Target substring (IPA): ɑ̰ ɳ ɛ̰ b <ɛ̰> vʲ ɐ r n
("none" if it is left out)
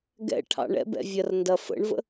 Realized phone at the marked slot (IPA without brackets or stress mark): ɛ̰